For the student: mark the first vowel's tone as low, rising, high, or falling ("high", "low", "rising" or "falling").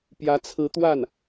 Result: rising